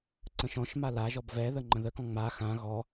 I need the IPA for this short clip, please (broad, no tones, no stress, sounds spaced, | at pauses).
ǀ ə̃ ʃ ɔ̃ ʃ m a l a ʒ ɔ b v ɛ ð ə ŋ͡ǃ ə̃ ð ə k ɔ̃ ŋ͡m a x ã ɣ ɔ